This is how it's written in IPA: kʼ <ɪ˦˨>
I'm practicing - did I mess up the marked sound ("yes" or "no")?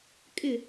no